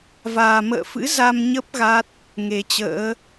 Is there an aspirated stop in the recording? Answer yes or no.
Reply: no